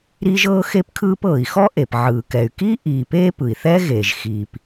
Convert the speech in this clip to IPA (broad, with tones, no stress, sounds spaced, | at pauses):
ɾ iː˥ ʒ ɤː˥ x e˥ p kʰ ɯː˥ p ɤː˩ i̯ x ɔ˥ ʔ e˩ p ʕ ɯː˩ k ɛ˩ y̯ k iː˥ ʔ iː˩ p eː˥ p ɯ˩ i̯ θ ɛ˥ ɣ eː˩ ʒ x iː˩ p